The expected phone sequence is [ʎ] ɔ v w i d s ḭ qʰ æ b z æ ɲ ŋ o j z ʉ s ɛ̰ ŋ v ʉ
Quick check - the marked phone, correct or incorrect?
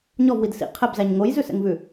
incorrect